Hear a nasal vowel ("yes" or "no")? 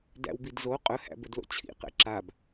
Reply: no